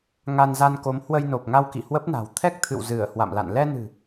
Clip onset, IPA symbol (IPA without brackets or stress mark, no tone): ŋ